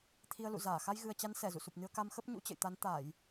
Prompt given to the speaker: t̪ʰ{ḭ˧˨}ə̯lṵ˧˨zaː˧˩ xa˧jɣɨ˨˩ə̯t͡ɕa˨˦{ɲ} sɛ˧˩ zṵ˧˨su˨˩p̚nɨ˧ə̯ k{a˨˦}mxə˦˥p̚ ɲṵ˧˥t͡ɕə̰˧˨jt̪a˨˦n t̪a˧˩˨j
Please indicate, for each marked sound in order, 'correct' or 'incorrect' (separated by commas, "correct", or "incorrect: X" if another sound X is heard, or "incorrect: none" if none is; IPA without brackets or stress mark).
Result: incorrect: i˧, incorrect: n, incorrect: a˧